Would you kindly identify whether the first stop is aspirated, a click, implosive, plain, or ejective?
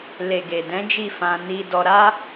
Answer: plain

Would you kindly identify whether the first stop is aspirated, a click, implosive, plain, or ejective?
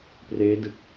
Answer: plain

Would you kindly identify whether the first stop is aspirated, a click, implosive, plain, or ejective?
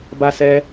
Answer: plain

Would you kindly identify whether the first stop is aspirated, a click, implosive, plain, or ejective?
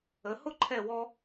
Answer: click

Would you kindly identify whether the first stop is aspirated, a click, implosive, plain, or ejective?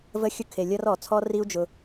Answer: aspirated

